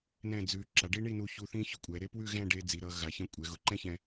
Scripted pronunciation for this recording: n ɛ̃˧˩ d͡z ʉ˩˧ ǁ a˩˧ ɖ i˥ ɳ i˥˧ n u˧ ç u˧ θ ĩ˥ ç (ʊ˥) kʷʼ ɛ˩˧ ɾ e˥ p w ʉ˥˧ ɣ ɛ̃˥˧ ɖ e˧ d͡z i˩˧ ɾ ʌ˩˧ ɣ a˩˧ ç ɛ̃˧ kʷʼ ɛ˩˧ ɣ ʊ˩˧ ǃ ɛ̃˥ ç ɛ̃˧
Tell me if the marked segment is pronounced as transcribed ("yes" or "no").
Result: yes